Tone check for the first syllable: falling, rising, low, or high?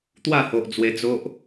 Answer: falling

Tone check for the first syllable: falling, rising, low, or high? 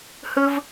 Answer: high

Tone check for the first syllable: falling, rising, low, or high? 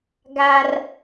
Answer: high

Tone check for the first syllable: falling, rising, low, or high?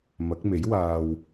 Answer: rising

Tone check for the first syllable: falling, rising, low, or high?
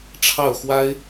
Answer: falling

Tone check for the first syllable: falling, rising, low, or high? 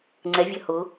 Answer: rising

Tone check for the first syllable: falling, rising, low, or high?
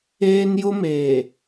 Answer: high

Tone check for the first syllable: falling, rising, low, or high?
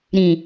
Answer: low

